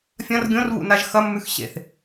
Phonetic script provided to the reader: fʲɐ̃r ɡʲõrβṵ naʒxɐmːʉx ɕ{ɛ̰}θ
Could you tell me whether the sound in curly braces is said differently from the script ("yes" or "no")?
yes